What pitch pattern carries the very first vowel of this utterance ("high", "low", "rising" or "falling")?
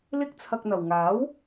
high